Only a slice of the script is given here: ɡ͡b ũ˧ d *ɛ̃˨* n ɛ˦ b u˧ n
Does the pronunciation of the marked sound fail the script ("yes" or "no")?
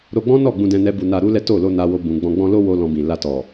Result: yes